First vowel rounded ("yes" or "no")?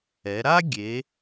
no